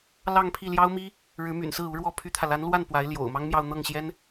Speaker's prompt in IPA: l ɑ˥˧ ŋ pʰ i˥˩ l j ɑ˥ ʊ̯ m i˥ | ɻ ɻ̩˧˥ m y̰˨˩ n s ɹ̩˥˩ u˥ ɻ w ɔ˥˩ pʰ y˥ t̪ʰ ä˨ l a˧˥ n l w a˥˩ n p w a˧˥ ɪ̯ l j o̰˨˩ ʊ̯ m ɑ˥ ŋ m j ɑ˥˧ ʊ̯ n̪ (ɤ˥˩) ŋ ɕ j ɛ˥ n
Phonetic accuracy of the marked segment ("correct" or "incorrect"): correct